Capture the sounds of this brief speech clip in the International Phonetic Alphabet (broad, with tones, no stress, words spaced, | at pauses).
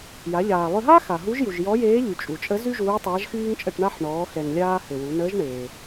ja˩˧ʎaː˩lˠø˧ɦa˥ xa˩ɦu˧˥ʒju˩ʒ jɔ˧˥jeː˧˥ʎy˩ t͡ʃʼu˩t͡ʃʼə˧˥ zy˥ʒuː˧˥ tˤaː˧˥ʒxyː˥ŋt͡ʃʼə˧ʈɳa˥ħ ɳɔː˩˧ xɛ˩ŋlʲaː˧ hø˩ wu˩˧ nəː˧˥ʒɳeː˩